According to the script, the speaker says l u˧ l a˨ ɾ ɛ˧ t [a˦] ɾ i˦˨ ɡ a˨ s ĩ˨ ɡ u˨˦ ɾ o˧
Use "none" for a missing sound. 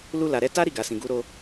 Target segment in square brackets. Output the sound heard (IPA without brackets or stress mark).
a˦